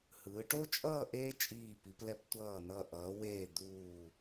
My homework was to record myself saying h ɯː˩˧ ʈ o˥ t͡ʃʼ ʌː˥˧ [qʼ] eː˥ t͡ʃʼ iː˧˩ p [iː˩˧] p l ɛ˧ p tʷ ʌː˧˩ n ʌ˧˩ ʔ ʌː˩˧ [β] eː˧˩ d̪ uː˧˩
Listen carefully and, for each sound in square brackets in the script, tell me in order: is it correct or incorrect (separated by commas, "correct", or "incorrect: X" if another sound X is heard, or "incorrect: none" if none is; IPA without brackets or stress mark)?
incorrect: ʔ, incorrect: i˩˧, incorrect: w